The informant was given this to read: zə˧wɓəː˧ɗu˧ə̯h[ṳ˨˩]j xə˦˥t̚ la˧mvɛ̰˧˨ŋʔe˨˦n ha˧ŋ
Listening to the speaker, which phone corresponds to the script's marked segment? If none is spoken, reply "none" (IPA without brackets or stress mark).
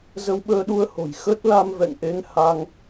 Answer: o̤˨˩